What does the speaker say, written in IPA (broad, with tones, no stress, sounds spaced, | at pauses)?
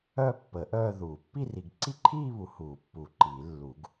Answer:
œ˥˧ pː ə˨˩˦ ʔ œː˥˧ ð uː˨˩˦ pː i˥˧ r i˨˩˦ ɡ ǀ i˥˧ ǃʰ iː˥˧ β u˨˩˦ h uː˨˩˦ pː u˨˩˦ ǃ i˨˩˦ lː u˨˩˦ ɡ